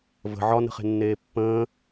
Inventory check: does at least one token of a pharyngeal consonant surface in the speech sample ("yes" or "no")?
yes